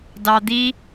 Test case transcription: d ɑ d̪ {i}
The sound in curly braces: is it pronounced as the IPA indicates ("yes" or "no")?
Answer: yes